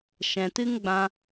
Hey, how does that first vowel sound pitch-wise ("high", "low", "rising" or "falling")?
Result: low